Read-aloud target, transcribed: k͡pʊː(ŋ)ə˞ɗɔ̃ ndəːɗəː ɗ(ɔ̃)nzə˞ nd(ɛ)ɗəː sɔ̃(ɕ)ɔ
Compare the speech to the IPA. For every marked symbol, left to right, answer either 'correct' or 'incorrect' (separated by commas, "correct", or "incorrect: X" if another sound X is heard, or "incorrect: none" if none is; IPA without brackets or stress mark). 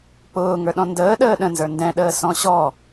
correct, incorrect: ə̃, incorrect: ɛ̃, correct